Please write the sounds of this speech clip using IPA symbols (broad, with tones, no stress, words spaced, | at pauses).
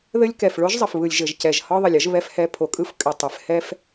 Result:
ðɘ˦lʲkɛ˨f ɭo˦ʒzˤɘ˨fβɯ˨lʲ ʒɘ˨ʒcɛ˨ʒ hɒ˦ðˤə˨lʲə˦ʒ βɛ˦fhɛ˦ pʰo˨kʼɯ˦f kʼɘ˨ tˤɘ˨f hɛ˦f